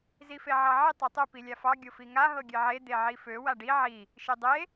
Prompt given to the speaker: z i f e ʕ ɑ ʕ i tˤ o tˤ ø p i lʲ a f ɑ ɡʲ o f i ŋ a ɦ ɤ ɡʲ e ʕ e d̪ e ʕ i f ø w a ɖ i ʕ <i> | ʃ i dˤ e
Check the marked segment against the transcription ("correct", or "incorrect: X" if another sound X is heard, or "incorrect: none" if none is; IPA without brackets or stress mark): correct